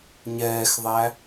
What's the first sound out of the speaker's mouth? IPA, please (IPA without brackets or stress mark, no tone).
ɲ